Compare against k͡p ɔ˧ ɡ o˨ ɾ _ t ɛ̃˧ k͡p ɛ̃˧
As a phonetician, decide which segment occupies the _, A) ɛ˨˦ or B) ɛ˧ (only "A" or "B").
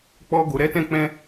A